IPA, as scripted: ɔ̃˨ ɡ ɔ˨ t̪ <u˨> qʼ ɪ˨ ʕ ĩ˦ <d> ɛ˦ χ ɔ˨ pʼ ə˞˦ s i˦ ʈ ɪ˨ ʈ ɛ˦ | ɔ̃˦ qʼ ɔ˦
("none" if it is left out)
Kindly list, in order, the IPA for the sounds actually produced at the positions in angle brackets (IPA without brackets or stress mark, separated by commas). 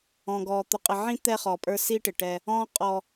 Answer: ʊ˨, t̪